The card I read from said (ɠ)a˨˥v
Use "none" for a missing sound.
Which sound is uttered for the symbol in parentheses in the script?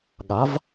ɠ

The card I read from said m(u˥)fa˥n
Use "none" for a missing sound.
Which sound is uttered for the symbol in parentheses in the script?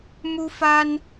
u˥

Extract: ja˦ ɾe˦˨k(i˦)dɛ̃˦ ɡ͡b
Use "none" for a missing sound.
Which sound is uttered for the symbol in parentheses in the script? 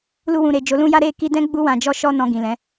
i˧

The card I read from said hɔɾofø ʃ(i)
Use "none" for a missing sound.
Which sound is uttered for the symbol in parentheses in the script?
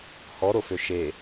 e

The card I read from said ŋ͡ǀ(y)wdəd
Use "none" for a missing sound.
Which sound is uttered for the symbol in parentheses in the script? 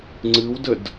ɨ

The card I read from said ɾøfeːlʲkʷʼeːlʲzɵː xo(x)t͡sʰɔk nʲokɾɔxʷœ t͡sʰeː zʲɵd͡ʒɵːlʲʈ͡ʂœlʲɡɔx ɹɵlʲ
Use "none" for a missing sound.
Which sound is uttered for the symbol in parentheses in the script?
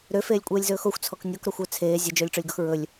xʷ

